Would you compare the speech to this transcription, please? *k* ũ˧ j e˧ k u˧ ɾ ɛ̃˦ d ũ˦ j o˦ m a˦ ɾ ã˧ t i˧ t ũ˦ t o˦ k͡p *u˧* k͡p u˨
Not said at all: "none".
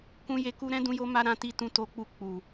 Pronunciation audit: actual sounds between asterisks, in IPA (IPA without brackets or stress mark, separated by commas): k, u˦˨